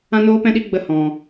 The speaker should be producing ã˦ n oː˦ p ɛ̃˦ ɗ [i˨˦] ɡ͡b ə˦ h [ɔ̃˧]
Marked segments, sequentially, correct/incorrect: incorrect, correct

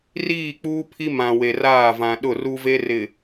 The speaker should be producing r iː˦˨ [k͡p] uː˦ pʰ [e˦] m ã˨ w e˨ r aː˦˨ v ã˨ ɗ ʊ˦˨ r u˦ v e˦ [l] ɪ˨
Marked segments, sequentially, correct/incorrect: correct, incorrect, incorrect

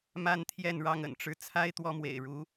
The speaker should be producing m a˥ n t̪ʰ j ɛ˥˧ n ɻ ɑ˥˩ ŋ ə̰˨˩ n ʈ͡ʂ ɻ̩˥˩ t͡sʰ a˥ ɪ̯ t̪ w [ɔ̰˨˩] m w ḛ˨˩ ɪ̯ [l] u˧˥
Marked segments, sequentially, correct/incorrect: incorrect, incorrect

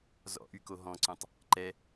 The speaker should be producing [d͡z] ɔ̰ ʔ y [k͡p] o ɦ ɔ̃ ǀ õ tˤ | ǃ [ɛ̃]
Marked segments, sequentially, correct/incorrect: incorrect, incorrect, incorrect

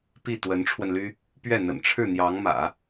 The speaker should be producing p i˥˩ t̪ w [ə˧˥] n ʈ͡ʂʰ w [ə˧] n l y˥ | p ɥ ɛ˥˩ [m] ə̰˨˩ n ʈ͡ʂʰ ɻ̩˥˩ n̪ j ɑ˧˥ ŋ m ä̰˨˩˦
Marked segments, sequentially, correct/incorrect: correct, correct, incorrect

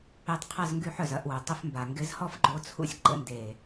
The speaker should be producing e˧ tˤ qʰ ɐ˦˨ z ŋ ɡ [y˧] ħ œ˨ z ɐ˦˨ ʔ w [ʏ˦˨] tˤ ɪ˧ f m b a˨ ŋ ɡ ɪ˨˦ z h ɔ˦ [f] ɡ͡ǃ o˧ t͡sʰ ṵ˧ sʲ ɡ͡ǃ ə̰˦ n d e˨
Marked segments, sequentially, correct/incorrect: correct, incorrect, correct

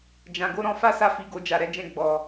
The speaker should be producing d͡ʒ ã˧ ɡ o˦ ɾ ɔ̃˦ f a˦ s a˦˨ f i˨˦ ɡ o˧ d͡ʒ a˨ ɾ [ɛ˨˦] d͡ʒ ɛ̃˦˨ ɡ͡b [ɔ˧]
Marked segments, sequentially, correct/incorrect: correct, correct

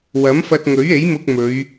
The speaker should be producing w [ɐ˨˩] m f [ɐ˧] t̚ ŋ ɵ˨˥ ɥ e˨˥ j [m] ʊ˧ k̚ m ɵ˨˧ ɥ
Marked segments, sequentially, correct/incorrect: incorrect, correct, correct

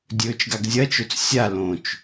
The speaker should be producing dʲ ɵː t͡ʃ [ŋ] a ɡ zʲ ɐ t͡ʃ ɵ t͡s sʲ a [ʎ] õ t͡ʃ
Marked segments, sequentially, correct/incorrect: incorrect, incorrect

